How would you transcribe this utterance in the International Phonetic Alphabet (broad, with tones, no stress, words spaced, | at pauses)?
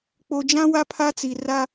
k͡po˨d͡ʒã˦ wa˦pʰa˦t͡si˨ ra˦